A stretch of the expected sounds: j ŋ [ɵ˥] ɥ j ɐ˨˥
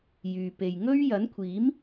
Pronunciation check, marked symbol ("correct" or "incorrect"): correct